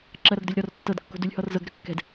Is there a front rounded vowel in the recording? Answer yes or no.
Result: yes